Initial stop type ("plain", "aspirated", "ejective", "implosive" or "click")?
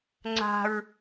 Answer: click